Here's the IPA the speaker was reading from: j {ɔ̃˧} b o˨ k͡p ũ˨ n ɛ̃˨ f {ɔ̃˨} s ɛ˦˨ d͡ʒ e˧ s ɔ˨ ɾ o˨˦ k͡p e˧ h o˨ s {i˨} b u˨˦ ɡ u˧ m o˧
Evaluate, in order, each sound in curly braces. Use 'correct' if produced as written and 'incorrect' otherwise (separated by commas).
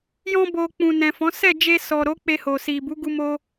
correct, incorrect, correct